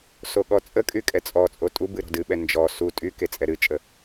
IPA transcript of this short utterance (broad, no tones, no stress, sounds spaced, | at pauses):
s o ɠ ɔ t͡sʼ ə kʼ y kʼ ɛ t͡sʼ ɔ t͡sʼ o tʼ u b ɨ ɾ ɔ̤ d ɨ ɓ ɛ n d͡ʒ ɔ s u tʼ y k e t͡sʼ ɛ ɾ ɨ t͡ʃʼ ə